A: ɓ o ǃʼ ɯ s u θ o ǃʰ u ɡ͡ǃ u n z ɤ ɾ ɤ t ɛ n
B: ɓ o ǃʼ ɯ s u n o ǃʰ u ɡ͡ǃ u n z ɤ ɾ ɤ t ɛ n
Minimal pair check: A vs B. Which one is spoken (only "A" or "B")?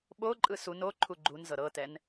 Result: B